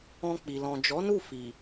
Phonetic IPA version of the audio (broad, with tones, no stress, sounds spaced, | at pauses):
ɔ̃˧ k͡p i˨ l ɔ̃˨ d͡ʒ ɔ˨˦ n u˦˨ f i˨